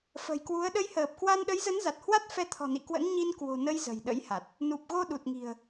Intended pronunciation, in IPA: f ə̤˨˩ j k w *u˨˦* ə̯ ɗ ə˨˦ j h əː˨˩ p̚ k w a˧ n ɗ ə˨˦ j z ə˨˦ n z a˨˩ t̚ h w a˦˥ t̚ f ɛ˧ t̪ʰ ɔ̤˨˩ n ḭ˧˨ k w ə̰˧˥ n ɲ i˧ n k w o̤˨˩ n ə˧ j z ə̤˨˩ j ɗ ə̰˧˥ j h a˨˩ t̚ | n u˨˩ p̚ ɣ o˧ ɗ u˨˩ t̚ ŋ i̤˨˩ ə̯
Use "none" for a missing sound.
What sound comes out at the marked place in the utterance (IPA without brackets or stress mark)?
u˨˦